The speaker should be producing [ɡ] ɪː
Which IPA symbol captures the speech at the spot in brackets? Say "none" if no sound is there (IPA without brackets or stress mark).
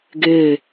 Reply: ɡ